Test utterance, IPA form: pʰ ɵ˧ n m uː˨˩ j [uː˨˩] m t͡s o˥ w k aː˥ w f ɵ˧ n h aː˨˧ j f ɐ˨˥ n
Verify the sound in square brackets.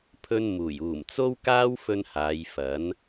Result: correct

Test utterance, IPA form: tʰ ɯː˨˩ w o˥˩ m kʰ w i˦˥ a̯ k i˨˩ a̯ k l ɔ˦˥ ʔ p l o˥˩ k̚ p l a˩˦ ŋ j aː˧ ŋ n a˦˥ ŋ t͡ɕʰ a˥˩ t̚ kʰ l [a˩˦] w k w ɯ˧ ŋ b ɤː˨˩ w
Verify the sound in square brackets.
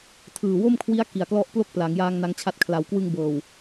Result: correct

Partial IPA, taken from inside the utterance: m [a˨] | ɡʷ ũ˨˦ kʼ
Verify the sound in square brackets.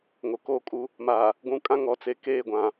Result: correct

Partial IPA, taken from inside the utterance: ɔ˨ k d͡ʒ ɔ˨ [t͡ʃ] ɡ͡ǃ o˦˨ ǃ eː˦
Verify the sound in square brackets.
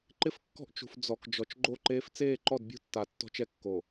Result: correct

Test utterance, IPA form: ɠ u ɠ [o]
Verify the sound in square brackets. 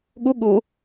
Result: incorrect: u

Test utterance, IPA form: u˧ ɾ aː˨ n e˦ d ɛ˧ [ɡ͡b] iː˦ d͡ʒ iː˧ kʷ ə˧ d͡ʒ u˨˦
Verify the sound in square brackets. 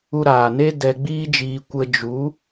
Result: correct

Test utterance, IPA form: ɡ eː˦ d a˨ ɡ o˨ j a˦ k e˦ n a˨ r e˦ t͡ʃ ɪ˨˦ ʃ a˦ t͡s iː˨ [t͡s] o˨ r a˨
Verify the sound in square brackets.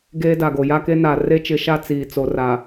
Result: correct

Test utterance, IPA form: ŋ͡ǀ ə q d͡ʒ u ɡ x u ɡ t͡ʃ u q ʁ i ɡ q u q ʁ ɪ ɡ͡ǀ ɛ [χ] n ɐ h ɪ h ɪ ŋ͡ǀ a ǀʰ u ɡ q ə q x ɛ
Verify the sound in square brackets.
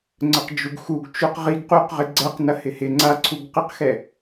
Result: incorrect: q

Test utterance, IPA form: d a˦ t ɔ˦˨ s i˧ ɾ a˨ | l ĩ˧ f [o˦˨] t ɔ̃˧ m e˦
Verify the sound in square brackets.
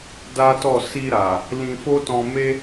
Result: incorrect: o˦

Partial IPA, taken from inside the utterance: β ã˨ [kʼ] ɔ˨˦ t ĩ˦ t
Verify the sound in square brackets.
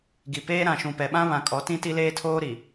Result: correct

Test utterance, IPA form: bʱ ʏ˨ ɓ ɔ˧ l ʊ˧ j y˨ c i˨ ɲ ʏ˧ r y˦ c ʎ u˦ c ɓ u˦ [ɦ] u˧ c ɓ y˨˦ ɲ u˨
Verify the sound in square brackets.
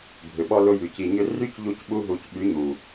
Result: correct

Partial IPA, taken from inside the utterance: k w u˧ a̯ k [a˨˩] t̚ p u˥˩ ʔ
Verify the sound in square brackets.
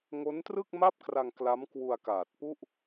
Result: incorrect: aː˨˩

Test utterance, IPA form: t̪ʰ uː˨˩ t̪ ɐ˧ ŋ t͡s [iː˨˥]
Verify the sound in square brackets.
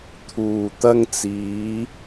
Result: incorrect: iː˨˧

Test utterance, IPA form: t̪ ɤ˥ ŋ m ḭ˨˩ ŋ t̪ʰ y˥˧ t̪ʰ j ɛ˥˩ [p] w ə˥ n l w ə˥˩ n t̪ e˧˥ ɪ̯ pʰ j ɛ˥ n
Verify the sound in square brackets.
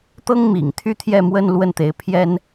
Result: incorrect: m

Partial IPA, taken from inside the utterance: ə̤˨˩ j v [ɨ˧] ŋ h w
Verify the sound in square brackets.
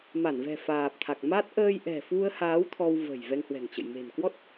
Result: incorrect: ɛ˧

